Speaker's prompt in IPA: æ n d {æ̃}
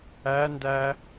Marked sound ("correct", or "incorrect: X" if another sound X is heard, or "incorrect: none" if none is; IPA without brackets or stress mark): incorrect: æ